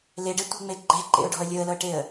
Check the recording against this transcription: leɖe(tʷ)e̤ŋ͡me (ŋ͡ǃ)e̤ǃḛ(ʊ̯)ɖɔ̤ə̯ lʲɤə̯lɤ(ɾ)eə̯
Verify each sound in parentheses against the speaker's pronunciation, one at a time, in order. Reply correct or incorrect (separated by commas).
correct, incorrect, correct, incorrect